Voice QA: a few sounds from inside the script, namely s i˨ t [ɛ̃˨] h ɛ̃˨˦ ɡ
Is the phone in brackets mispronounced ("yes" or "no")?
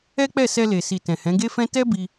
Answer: no